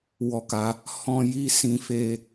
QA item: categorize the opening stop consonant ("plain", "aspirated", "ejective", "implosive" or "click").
plain